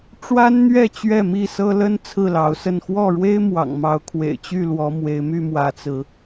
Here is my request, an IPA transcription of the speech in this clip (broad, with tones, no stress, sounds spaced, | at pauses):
ʈ͡ʂ w a˦ n n̪ ɥ ɛ˥˨ t͡ɕ ɥ ɛ˥˨ m i˥˨ s ɤ˦ l ə˦ n t͡sʰ ɹ̩˥˨ l ɑ˨˦ ʊ̯ s ə˥˨ n x w ɔ˥˨ ɻ w e˦ ɪ̯ m w ɑ̰˨˩ ŋ m ɑ˨˦ ʊ̯ kʰ w ḛ˨˩ ɪ̯ t͡ɕ y˥˨ l w ɔ˨˦ m w e˨˦ ɪ̯ m y˥˨ m w ä˨˦ t͡s ɹ̩˨˦